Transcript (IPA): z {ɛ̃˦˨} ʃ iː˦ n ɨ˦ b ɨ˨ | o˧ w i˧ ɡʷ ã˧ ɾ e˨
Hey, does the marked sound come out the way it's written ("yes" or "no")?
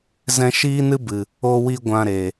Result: no